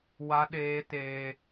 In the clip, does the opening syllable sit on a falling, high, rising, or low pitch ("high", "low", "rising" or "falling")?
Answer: high